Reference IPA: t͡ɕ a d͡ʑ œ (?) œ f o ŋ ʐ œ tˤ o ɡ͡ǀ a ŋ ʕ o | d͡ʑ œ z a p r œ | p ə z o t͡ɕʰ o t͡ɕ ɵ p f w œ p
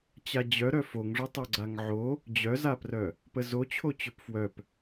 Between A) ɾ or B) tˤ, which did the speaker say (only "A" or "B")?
A